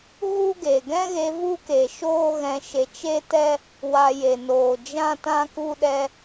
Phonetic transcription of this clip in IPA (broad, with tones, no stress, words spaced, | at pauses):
ɣu˦ɡe˨ ɡɛ̃˦ɣe˧ vu˦ke˨ ʃoː˦ɣɛ̃˧ʃe˧ t͡ʃe˦tɛ˦ | wa˨ je˨noː˨ d͡ʒã˦tã˦ku˦ɗɛ˦